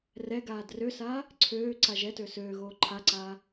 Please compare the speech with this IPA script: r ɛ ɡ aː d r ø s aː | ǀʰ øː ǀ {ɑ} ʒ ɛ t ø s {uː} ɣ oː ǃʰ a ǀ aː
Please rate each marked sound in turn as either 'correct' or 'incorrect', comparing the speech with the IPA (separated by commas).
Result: incorrect, incorrect